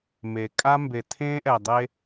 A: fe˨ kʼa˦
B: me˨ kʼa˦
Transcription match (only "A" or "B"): B